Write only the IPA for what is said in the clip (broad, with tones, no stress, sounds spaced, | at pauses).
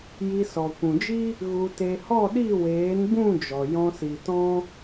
j i˧ s ɔ˨ kʷ ũ˨ d͡ʒ i˦ | ɣ u˧ t e˧ h ɔ˦˨ ɗ i˦˨ w eː˨˦ n b ũ˦˨ d͡ʒ ɔ˨ j ɔ̃˧ s i˨ t ɔ̃˦